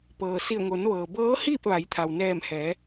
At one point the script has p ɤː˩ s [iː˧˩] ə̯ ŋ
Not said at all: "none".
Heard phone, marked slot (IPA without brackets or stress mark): i˧˩